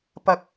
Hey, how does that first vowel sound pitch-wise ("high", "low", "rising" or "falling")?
rising